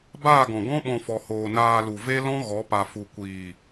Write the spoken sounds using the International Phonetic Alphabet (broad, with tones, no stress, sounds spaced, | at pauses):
b aː˦˨ ɡ ɔ̃˨ ɡ ɔ̃˦ ɓ ɔ̃˧ f ɔ˨ h oː˨ n aː˧ l u˨ v e˦ l ɔ̃˦ ɣ ɔ˨˦ p a˨ f u˨ kʷ iː˨